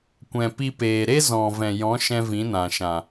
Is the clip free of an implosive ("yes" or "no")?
yes